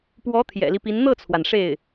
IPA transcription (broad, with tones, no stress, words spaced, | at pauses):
pwɔ˧˥ t̪ʰjɛ̰˨˩li˦pi˧˥n n̪ɤ˥˩t͡sʰwa˩n ʂe˥˩ɪ̯